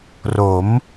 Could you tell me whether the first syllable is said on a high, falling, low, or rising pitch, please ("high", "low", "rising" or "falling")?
rising